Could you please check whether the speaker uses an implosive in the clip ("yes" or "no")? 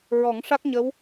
no